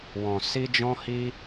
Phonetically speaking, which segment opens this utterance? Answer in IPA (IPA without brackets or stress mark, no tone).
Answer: w